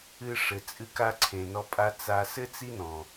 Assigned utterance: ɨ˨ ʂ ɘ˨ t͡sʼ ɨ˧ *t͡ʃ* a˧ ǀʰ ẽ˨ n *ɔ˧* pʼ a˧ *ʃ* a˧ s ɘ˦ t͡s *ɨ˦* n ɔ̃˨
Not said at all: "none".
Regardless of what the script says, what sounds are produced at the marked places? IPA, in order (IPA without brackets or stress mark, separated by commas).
k, ɔ˧, t͡s, i˦